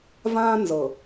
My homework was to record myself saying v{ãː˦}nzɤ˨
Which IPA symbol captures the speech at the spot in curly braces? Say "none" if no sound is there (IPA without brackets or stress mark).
ãː˦